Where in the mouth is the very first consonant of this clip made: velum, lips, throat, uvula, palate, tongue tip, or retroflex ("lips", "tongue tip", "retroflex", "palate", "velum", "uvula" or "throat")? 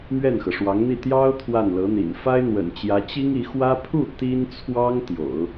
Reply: lips